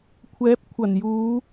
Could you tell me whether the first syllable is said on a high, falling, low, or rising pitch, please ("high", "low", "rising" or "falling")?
rising